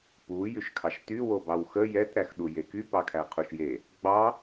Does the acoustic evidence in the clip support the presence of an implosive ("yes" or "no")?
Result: yes